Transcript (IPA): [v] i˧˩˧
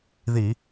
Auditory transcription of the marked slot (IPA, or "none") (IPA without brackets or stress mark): ð